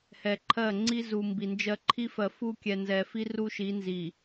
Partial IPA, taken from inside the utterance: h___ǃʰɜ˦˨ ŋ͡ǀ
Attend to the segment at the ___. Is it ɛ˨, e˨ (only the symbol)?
ɛ˨